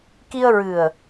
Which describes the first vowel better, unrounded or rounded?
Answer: unrounded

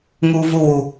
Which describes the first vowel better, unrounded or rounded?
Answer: rounded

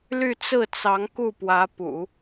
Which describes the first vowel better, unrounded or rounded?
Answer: rounded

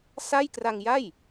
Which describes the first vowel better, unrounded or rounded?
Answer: unrounded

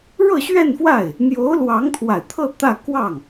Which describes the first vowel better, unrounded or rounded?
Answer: unrounded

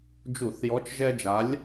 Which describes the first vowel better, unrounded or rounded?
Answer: rounded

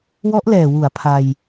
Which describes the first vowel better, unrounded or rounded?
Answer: rounded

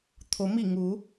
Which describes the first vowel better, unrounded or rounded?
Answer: rounded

